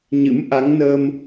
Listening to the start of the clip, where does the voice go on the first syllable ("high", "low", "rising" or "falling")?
rising